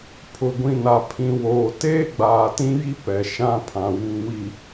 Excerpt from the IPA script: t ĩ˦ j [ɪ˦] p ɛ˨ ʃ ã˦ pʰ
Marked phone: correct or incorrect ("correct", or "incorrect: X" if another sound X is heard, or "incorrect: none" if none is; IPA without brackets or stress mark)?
incorrect: i˦